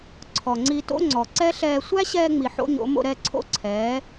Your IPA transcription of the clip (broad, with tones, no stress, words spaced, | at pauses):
ǀʰɔ˨ŋ͡ǀi˧to̰˦ŋ͡ǀɔ˨ ǀɛ˦ɬɛː˧ sʷæ˦ɕɛː˧ŋ͡mi˨ ħo̰˦ɲo̰˨˦ mo̰˧ɾɛ˦˨ǀʰo̰˦ǀʰɛː˨˦